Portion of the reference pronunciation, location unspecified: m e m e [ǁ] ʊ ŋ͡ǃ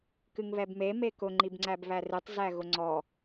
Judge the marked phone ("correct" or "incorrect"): incorrect